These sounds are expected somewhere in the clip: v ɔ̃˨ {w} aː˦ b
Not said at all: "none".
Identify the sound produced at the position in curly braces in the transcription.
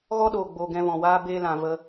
w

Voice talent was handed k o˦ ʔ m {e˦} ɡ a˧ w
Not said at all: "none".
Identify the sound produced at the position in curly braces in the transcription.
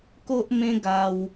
ẽ˦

